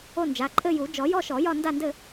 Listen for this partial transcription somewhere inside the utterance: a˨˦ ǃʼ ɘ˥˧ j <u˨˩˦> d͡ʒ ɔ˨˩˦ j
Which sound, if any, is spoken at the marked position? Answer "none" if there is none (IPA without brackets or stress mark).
u˨˩˦